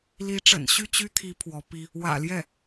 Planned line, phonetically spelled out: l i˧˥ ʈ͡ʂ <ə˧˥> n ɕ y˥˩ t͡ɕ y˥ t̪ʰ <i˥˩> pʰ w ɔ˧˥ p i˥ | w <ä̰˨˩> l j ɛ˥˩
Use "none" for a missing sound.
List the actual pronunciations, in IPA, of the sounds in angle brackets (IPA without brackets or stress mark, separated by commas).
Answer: ə̰˨˩, i˧˥, ä̰˨˩